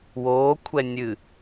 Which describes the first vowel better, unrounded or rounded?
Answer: rounded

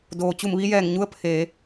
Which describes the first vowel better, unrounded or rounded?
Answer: rounded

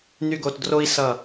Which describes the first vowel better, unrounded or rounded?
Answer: rounded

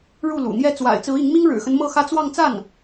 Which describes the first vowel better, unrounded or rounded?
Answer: rounded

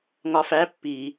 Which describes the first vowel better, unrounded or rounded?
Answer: rounded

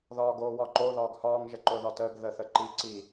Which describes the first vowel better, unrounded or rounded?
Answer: rounded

